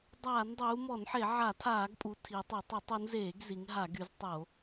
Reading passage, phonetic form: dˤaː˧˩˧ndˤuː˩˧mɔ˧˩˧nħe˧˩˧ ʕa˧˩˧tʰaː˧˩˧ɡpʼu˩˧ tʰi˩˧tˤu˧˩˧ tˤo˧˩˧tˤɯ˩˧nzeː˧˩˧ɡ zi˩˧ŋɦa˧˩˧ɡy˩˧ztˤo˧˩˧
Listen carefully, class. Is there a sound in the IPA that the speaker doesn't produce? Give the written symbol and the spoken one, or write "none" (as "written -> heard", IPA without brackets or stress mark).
ɯ˩˧ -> u˩˧